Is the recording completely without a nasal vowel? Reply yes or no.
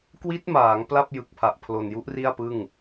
yes